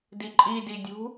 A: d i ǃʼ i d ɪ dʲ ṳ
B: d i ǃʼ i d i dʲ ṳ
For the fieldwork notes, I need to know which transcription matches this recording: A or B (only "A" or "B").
B